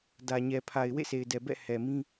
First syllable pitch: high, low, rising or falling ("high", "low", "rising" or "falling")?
low